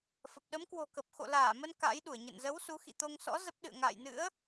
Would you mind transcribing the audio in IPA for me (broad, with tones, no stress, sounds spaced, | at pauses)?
f ə˨˩ p̚ ɗ ə˨˦ m k w o̤˨˩ k ə˨˩ p̚ x o̰˧˨ l aː˧˩ m ə˧ n k a̰˧˥ j ɗ u˧˩ ə̯ ɲ ə̰˧˨ n z ə˨˦ w s u˨˦ x ḭ˧˨ t̪ o˧ ŋ s ɔ̰˧˥ z ə˦˥ p̚ ɗ ɨ̰˧˨ ə̯ ŋ a̰ː˧˨ j n ɨ̰˧˥ ə̯